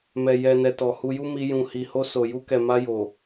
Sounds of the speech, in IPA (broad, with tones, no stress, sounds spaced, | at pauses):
m ɛ˨ j ɛ˨ n ɛ˨ t ɔ˨ h u˧ j u˦ m i˧ j ũ˨ h i˨ h o˧ s o˨ j u˧ k ɛ˨ m a˧ j o˨